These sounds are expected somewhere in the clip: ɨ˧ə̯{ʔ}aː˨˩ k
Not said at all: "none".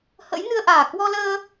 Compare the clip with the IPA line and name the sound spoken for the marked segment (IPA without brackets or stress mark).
ʔ